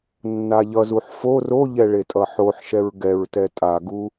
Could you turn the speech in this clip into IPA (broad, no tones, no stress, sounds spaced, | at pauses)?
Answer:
nː a ʎ ʌ z u ħ f o r o ʎ ɛ ɭ e tʼ ʌ ħ o ħ ʃ ɛ ɹ ɡ ɛ ɹ t ɛ tʼ a ɡ u